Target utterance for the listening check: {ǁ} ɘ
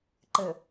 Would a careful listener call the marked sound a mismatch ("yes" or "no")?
yes